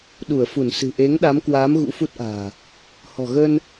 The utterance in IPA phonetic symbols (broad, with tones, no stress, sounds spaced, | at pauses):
ɗ u˧˩ ə̯ f u˧˩ n s ɨ̤˨˩ ʔ e˨˦ ŋ ɗ a˨˦ m k w aː˨˦ m ɣ ṵ˧˥ f u˦˥ t̚ ʔ a̤ː˨˩ | h ɔ̤˨˩ ɣ əː˧ n